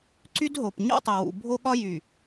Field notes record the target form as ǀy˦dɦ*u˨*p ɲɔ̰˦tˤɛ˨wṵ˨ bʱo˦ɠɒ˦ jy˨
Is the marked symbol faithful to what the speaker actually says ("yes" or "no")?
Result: no